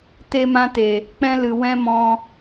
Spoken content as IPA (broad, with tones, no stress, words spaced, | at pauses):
te˧mã˧te˨ | k͡pɛ̃˦lɨ˨ wɛ̃˦mɔ̃˧